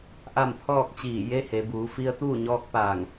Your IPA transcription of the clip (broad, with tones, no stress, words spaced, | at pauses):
ʔa˥˨mpʰɔː˥˨k̚t͡ɕiː˧˩ je˧˥he˩˧buː˩˧fi˧ə̯ t̪uː˥˨ɲɔː˧k̚ paː˧˩ŋ